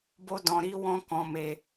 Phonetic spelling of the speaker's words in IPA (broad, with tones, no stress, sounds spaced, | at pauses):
b o˧ d ɔ̃˨ ɾ i˨˦ w ɔ̃˦ k ɔ̃˧ m e˧